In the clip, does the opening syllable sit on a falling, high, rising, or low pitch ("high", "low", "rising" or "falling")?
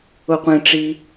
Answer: high